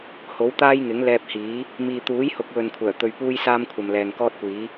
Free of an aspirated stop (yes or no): no